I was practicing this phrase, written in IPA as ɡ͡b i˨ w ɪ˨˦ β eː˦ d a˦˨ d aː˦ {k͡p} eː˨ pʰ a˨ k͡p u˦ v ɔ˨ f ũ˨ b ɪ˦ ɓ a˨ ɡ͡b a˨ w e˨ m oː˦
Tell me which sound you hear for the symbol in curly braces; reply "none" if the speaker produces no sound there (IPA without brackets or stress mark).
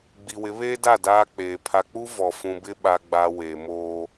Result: k͡p